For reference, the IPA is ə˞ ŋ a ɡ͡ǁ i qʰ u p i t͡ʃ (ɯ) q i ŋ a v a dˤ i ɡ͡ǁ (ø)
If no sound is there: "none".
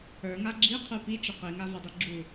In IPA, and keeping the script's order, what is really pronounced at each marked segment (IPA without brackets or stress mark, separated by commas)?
ə, u